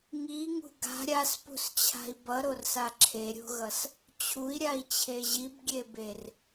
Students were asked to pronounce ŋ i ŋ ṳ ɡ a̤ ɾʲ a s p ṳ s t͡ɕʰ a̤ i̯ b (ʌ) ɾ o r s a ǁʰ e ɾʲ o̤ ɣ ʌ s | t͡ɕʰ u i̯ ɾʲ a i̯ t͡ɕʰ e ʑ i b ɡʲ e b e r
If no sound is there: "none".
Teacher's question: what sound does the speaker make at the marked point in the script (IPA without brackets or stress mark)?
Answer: ʌ